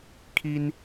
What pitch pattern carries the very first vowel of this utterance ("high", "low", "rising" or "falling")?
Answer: high